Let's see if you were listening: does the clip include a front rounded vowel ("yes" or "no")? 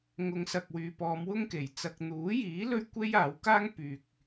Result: yes